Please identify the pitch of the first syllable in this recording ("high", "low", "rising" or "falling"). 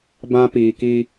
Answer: high